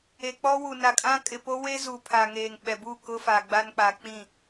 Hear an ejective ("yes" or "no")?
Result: yes